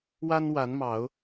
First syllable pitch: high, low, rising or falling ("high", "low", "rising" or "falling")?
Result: high